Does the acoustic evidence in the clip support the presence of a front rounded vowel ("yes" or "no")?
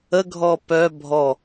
yes